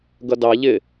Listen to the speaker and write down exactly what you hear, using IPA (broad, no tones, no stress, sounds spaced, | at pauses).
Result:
ɡ ʌ d ɑ ʎ ɪ